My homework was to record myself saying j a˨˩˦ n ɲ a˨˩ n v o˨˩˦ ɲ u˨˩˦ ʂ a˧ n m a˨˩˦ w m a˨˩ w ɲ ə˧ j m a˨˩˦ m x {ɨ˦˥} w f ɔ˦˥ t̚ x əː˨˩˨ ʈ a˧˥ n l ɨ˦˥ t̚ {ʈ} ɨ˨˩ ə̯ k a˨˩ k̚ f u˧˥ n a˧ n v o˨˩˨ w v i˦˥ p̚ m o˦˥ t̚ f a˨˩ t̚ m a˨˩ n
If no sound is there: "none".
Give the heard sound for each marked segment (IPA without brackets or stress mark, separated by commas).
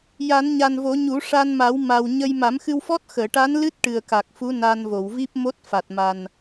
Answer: ɨ˧, ʈ